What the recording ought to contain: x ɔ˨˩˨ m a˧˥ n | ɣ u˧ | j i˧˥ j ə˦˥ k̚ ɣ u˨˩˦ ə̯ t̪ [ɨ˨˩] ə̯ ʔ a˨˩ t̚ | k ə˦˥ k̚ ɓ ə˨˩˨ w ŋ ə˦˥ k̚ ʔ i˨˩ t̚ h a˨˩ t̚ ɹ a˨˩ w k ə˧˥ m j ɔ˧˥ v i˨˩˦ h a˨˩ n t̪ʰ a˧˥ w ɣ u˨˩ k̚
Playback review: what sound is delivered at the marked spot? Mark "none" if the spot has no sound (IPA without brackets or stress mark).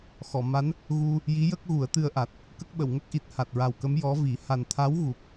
ɨ˧